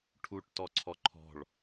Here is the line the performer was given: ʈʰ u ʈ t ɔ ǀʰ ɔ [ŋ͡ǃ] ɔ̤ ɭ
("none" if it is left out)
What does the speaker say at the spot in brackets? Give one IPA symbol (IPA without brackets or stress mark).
ǃʰ